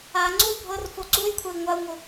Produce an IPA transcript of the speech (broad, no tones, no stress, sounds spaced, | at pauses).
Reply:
a ŋ͡ǀ u y̯ bʱ ɤ r f o ǀ u j kʷʰ ɛ i̯ ŋʷ a u̯ ŋ o